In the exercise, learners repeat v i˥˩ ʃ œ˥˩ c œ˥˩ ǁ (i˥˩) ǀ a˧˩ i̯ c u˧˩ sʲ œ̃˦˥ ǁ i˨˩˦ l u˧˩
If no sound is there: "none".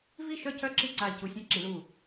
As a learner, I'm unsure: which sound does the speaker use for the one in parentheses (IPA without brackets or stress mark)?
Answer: i˥˩